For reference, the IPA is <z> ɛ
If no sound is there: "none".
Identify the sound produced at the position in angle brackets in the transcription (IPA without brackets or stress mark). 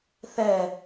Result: θ